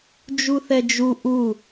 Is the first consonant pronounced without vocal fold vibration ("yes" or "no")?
no